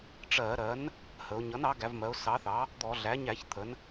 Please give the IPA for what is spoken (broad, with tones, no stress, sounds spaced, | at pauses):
ʈ͡ʂ ɜ˧˩˧ ɾ ɜ˩˥ n | h ə˩˧ ʊ̯ ɲ ʌ˩˥ n ɑ˩˥ ɡ æ˩˧ v m ɜ˩˧ ʊ̯ s ɑ˩˥ θ ɑ˩˥ | d̪ ɔ˧˩˧ ɮ æ˩˥ ɲ æ˧˩˧ ç t̪ʰ ə˩˧ n